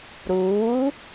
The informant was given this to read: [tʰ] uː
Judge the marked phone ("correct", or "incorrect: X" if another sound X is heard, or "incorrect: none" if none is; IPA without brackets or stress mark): incorrect: ɾ